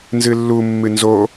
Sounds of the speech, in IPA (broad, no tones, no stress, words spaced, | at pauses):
nzɨlːu mːɨnzo